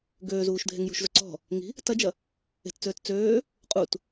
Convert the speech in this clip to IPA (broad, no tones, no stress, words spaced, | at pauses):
ɡøːzuːʃ dʱeŋjṳʃzʊ ǀɔ̤ | ŋi̤ | tɐd͡ʒɐ | e̤tt͡søːt t͡søː | qʼut